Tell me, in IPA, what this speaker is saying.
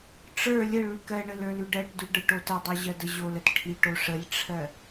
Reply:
ʈ͡ʂə˞ lʲə ɭʉkɜɳə lə˞lʉɖɜʈdʉ ɖə˞ʈotədˤo ʑɜdəʑolət ʈʰiʈo ʂəlʲʈ͡ʂʰɜ

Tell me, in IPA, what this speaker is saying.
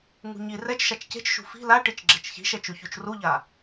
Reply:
ŋṳɲi rɛt͡ʃʃat͡ʃ ce̤t͡ʃʃṳ fi̤ laʈit͡ʃ ɡ͡ǁɛt͡ʃçi̤ʃɛ t͡ʃuçut͡ʃruʎa

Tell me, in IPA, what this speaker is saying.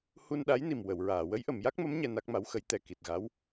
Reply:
hu˧nɗa˧˥jni˨˩m wə˨˩˨wɹaː˨˩˨ wə˧˥jʔə˨˩˨mja˦˥k̚mə˧˥m ɲɛ˧na˦˥k̚ma˧˥wxə˧˥j t̪ɛ˨˩ ki˨˩t̚ɣa˧˥w

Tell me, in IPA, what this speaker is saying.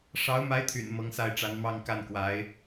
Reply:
ʂɑ˧˥ʊ̯ma˧˥ɪ̯t̪ʰy̰˨˩n mɤ˧˥ŋsa˥˩ɪ̯ʈ͡ʂa˧˥n mɑ˥˧ŋka˥˩nkwa˧˥ɪ̯

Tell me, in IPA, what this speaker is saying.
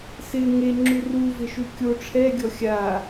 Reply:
sɪ ŋeŋ͡ǁu ruvɪʃu kʲo ʈ͡ʂʰɛɡʲɔ xʲa

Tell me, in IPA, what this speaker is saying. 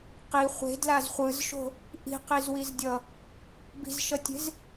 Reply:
qi χʷe̤dlaz χʷɯzʃo̤ | ʔi̤qizwizdʲʌ | bi̤zʃʌtʲe̤z

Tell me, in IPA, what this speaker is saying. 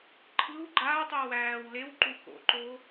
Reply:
ǃʰɯw ɡ͡ǃaːtˤuː wæːw lewǃu ko̰ǃo

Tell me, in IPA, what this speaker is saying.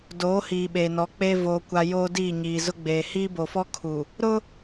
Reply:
doː˨˦hiː˨ ɓeː˨nɔ˨˦k͡peː˦ voː˨kʷa˨ joː˦diː˦˨ɲiː˨ zʊ˦ɡ͡beː˨ hiː˦bo˨fɔ˦ kʰu˨ | ɾʊ˦

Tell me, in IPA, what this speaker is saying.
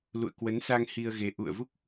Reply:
lṵ˧˨ə̯kwə˨˦nsa˧ŋ hi˧ə̯ɣe˨˦ ʔṵ˧˨ə̯vu˦˥k̚

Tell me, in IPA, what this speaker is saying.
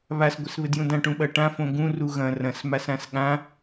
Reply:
βas ɡʷɘsβɘdjũdã ʈũɓɐʈã fõɡũ ruɣɐ̃ rɐ̃s masãsɠã

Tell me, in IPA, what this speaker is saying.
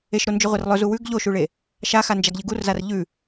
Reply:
eʃɾond͡ʒɵʁʷer lˠɵzu wʉɡ ʎoʃuɭe | ʃaxand͡ʒaɡʎɨ ɡurzar ʎʉ

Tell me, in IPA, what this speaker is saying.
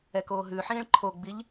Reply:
ɛkoː ɦʉħĩːɭ ǃʰoɡ͡biʎ

